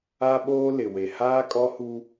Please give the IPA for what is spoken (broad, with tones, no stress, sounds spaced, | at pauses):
a˦ ɓ oː˦ l ɪ˨ w e˨ h aː˦ kʼ ɔ˦ h u˦